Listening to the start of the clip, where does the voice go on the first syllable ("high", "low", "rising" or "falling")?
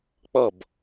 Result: falling